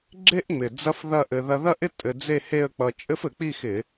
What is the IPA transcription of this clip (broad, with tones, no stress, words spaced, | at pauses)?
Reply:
ɡ͡ǁe˥ʔŋ͡mɪ˨˩ d͡zɐ˥fðɐ˥˧ʔɘ˧ ðɐ˧ðɐ˥˧ʔɪ˥˧ tʼɘ˧d͡ze˥˧he˥˧ə̯ k͡pʌ˧ t͡ʃʼɘ˥fɘ˧˩˧k͡pi˥˧xɪ˧˩˧